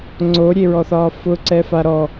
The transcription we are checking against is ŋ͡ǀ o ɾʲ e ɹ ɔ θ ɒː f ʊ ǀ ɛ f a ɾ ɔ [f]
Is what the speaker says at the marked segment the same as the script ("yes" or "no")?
no